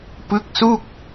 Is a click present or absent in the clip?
absent